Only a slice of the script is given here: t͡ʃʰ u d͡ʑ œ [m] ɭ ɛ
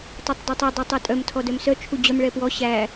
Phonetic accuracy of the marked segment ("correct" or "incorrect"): correct